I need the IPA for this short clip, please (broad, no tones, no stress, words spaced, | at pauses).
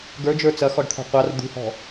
ɡə˞d͡ʒə˞ t͡sɐxɔɖt̪ʰɔ̤ qʷɑr d̪ṳhɔ̤